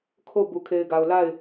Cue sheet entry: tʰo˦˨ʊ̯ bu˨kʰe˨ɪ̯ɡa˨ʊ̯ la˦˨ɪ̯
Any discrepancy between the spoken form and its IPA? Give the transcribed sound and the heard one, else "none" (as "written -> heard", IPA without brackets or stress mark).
tʰ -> kʰ